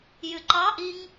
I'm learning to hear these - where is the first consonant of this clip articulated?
palate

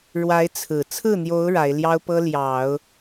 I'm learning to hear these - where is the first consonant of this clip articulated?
retroflex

